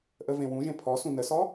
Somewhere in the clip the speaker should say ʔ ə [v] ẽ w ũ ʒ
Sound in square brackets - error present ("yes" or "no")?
no